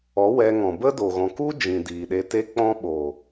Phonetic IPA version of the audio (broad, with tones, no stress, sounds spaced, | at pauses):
ɔ˨˦ w ɛ˧ ŋ ɔ̃˨ b ə˦ d oː˨ ɣ ɔ̃˨ k u˦ d͡ʒ ĩ˨ d iː˨ ɗ e˧ t e˦ k͡p ɔ̃˦ ɓ o˨